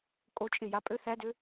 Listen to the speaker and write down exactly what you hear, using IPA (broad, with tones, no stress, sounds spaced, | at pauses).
kʼ o˦˥ t͡ʃʼ ɪ˥˧ j a˦˥ pʼ ø˦˥ θ æ˦˥ d ø˦˥